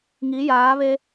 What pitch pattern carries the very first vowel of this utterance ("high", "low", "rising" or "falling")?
rising